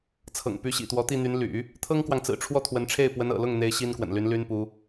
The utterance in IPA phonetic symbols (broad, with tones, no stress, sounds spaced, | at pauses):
t͡sʰ ɤ̰˨˩ ŋ p y˧˥ ɕ ḭ˨˩ t̪ w ɔ˧˥ t̪ i˥˩ n̪ y˧˥ n l y̰˨˩˦ | t̪ʰ ɤ˥ ŋ k w ɑ˨ ŋ t͡s ɹ̩˨˩ ʈ͡ʂʰ w ɔ˥˩ t̪ʰ w ə˧˥ n ʈ͡ʂʰ e˥˩ ɪ̯ p w ə˧˥ n ɤ̰˨˩ l ʊ˥˩ ŋ n̪ e˥ ɪ̯ ɕ i˥ n k w ə̰˨˩ n l y˧˥ n l y˥ n p u˧˥